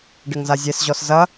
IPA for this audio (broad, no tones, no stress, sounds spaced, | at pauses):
ɖ ɘ ŋ z a zʲ e s ʑ ɔ s z ɐ